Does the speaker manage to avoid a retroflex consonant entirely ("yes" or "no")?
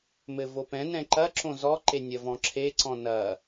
yes